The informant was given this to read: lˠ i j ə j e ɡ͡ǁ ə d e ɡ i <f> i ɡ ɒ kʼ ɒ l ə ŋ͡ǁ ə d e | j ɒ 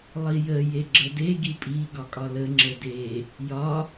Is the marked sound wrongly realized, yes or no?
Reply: yes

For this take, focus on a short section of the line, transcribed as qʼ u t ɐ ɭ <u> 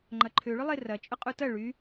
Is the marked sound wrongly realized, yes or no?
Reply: yes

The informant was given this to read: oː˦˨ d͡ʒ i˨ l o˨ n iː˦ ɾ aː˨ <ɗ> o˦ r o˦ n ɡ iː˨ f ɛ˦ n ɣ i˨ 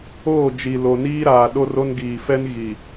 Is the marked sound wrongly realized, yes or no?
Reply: no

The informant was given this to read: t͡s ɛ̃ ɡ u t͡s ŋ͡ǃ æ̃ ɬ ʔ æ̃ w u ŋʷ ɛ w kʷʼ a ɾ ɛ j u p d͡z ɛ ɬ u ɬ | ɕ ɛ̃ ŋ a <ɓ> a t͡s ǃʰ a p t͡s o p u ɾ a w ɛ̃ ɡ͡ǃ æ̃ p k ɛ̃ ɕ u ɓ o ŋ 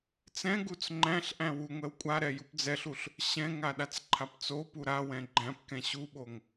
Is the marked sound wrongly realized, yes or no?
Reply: yes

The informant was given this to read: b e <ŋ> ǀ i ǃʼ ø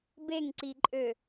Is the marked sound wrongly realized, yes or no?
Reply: no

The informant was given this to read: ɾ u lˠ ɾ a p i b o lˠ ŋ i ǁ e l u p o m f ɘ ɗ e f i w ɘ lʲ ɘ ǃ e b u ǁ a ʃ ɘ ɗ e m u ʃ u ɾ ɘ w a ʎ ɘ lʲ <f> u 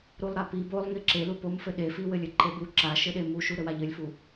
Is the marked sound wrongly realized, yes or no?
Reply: no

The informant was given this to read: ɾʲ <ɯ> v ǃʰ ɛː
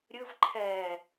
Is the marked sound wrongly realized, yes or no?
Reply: no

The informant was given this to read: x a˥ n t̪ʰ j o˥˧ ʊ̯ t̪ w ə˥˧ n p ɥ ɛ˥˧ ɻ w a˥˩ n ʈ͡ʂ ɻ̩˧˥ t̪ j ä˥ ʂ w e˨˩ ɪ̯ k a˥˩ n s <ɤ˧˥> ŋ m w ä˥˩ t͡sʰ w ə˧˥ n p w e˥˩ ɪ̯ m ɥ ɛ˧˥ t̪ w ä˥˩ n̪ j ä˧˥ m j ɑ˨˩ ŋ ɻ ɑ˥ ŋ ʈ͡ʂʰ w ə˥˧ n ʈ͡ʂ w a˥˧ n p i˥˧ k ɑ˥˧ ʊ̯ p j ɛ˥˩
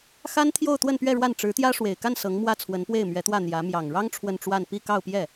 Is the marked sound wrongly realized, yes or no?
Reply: no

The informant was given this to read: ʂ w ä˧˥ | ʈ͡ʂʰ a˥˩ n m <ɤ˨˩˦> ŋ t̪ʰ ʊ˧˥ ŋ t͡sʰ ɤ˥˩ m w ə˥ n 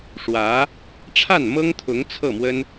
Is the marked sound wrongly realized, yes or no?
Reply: yes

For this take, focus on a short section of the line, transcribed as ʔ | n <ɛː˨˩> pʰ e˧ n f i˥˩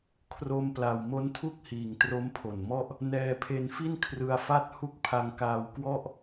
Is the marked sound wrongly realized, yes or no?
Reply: yes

